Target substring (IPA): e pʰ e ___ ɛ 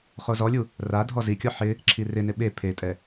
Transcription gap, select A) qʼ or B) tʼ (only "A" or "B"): B